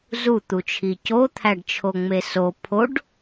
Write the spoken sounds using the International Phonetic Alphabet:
z u t̪ u t͡ʃʰ i c o t̪ʰ æ ɖ t͡ʃʰ o ŋ͡m e s o pʰ o ɖ

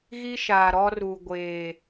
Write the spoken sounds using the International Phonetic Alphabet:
ɣ i˦ ʃ aː˨ ɾ ɔ˦ r u˨ ɡʷ eː˨

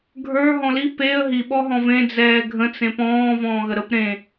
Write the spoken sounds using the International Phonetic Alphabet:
ɡʱ ə˞ ɦ ɔ̃ l i p e ə̯ ɦ i ɓ ɔ ɦ ɔ̃ v ẽ d͡z ɛː ɡʱ ə̃ t͡s ẽ p ɔ̃ː v ɔ̃ː ɣ ə ɾ ə p ɾ ẽ

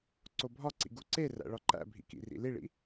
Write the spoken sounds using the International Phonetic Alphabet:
ǀ o bʱ ɒ ǀ ḭ ɡ u ǀ e r æ̰ ɭ ɒ ǃ æ̰ bʱ ḭ k ḭ r ḭ l i ɭ ḭ

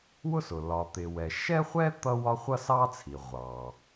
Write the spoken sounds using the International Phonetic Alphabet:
w ʊ˥ s ʊ˩ l ɒ˩ t̪ ɪ˩ w ɛ˩ ʃ ɛ˥ χʷ ɛ˥ t̪ ʌ˥ w ɒ˥ χʷ ʌ˥ s ɑ˥ t͡sʰ i˩ ʁʷ ɑ˩

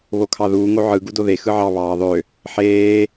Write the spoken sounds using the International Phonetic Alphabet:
β o kʰ ɑ ð uː ŋ o ʕ ɯ ɡ u d o ð e x ɯ ʕ ɑ β ɑː ðˤ ø | ħ eː

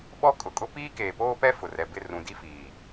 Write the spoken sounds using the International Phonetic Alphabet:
ɓ ɔ˦ kʼ ʊ˨ kʼ ʊ˦ p iː˦ k eː˨ p oː˦ p ɛ˦ f ʊ˨ r ɛ˨ b ɪ˦˨ r ũ˨ d i˦ f iː˨

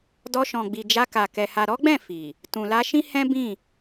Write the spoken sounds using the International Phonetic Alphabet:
d ɔ˧ ʃ ɔ̃˨ ɡ͡b i˨ d͡ʒ a˧ k a˨ k ɛ˨ h a˨ ɾ ɔ˨˦ ɡ͡b ɛ̃˦˨ f i˨ | t ũ˨ l a˧ ʃ ĩ˦ h ɛ̃˦ b ĩ˦˨

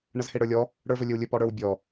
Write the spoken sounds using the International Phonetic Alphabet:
ɳ ə z h e ɽ ə˞ lʲ ɔ | ɽ ə˞ v ɵ lʲ ɵ w lʲ ɵ p ɔ ɽ ə˞ w bʲ ɔ

